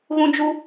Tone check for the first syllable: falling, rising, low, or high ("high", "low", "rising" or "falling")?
high